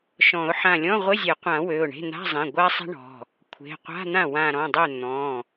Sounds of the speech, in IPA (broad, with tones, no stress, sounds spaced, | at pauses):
ʃ ɔ̃˨˩˦ ʊ̯ ħ ã˧˩ lʲ ɔ̃˧˥˧ ʁʷ ɪ˧˥˧ zʲ e˨˩˦ qʷ ã˨˩˦ w ø˩˧˩ ʊ̯ ɳ e̤˧˥˧ n̪ a̤˧˥˧ zˤ ẽ˩˧˩ ɡʷ a˥ sˤ e̤˥ ɳ ɔ̤˩˧˩ | kʷʰ e̤˩˧˩ qʷ a̤˧˥˧ n̪ ã˥˩ w ã˧˩ ɾ ɔ̃˩˧˩ dˤ ø˥˩ n̪ ɔ̃˩˧˩